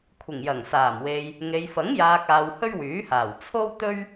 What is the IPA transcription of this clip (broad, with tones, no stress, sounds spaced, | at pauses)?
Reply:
kʷʰ ɪ˨˩ ŋ j ɐ˨˩ ŋ s aː˨˩ m w e˨ j | ŋ e˨ j f ɐ˨˥ ŋ j aː˨ k̚ aː˨ w h ɵ˥ ɥ w yː˨˥ h aː˨˩ w t͡sʰ o˥ w t̪ ɵ˥ ɥ